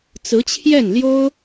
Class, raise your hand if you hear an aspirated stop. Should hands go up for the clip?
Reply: yes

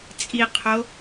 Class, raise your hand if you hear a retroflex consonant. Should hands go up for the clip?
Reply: no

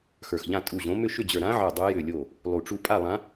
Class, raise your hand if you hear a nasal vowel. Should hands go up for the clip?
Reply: yes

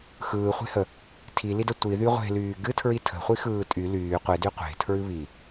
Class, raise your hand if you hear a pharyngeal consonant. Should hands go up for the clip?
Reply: no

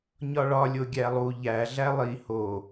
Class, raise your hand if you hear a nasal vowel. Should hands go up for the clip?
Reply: no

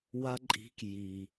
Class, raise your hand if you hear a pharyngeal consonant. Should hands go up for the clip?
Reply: no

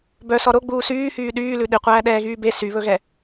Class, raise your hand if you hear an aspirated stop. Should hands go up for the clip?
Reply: no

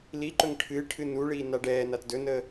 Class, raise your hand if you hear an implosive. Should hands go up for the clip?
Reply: no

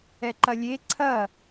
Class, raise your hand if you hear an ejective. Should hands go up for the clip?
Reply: no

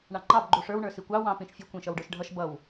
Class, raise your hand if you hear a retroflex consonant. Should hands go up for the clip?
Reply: yes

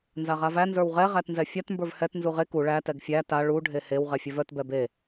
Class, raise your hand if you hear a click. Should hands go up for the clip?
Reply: no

